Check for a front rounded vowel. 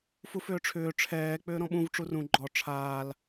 present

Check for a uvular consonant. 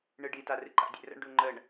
absent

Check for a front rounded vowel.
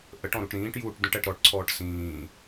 absent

